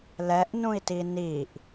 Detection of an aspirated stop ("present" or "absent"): absent